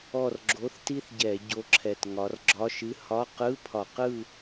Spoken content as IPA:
ɔ˥˨rɡ͡ǁo˧˥˧θti˥θɟɛ˧˩˧ ɟo˨˦ǁʰɛ˨˩t ŋɒ˨˦rɡ͡ǁɒ˧˥˧ʃɨ˧˥˧ hɒ˧˥˧ qɯ˧˥˧pʰɒ˧˩˧q ɯ˥˨

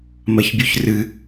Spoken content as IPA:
mɐçbʲuçrɨ

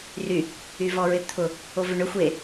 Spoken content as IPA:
ry | yvɔɹɪt̪ʰʊ | ovʏɳʏ xʷe

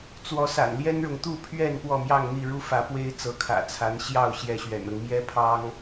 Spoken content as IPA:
t͡swɔ˨˦sa̰˨˩n ljɛ˦nɻʊ˨ŋt̪u˥˨pʰɥɛ˥˨n pwɔ˥˨mjɑ˥˨ŋn̪i˥˨ ɻu˦fä˨˦pwe˦ɪ̯ t͡sɤ˨˦kʰä̰˨˩t͡sʰa˨˦n ɕjɑ˥˨ʊ̯ ɕjɛ˥˨ɕɥɛ̰˨˩nɤ˦ŋ mjɛ˦pʰɑ˦ŋ

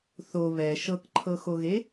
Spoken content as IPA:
θo βɛ ʃɤkǃʰɤxoɣe

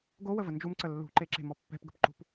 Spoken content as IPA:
ɡowə vənd͡ʒumǀə lːṳǃeǁe̤ mɔpːɛ̤pɡə̤pǃṳp

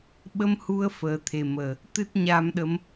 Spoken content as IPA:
ɓə˧mhu˧˥ə̯ fəː˨˩t̪ʰe˨˩məː˨˩˨ | t̪ɨ˦˥t̚ɲa˧˥mɗə˧˥m

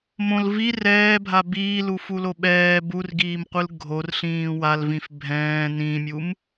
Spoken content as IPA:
mõl vi rɛːbʱa biːlufulo ɓɛː burɡiːmqʷɯl ɡʱorɬĩː walvĩf bʱɛ̃ː nĩmʲum

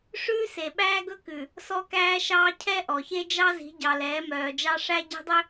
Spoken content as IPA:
ʂʉː˦se˨ ɓæː˦ɡɵ˦ kʉ˨ | sɔ˦kæː˦ʃɑː˦ cʰɛ˦ʔɔ˨çe˦ d͡ʒɑ˦ zi̤˨˦ɟɑ˨lɛː˨˦ mœː˨ d͡ʒɑ˦ʂæ˦ ɟi̤˦dˤø˦

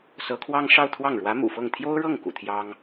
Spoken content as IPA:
sɤ˧˥kʰwɑ˥ŋ ʂɑ˥˧ʊ̯t̪ʰwɑ˥˩ŋ ɻwä˧˥ mṵ˨˩fɤ˥˩ŋ t̪ʰjo˥ʊ̯ɻɤ˥˩ŋ kṵ˨˩t̪ʰjɑ˥ŋ

